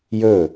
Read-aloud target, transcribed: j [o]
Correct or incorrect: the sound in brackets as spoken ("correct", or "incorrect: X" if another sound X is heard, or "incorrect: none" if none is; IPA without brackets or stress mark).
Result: incorrect: ɵ